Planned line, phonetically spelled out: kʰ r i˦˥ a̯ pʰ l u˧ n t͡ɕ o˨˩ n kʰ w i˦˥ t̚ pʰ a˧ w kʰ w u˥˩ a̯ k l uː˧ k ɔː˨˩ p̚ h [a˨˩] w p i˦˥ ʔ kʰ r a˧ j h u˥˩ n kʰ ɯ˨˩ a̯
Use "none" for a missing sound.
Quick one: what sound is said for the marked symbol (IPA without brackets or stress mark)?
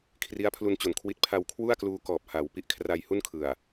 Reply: a˩˦